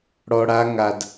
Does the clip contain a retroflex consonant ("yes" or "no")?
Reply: yes